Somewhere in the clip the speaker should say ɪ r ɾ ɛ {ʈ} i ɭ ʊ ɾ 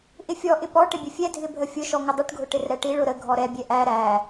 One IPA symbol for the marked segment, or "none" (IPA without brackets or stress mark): ʈ